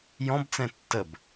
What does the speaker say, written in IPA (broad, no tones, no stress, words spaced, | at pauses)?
jɔ̃bt͡sɛ̃ tːəb